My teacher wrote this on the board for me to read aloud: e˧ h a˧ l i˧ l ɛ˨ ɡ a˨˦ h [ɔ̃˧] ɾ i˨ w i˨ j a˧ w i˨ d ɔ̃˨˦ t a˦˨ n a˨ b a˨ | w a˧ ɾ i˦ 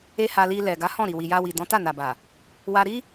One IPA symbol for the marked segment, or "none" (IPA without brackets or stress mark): ɔ̃˦˨